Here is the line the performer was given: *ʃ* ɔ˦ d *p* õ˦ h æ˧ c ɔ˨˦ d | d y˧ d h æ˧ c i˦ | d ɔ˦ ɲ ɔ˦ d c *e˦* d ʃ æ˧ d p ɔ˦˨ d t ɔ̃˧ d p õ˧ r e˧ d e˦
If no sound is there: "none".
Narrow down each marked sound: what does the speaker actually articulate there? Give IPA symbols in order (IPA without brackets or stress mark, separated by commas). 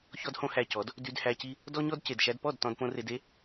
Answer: ç, h, e˨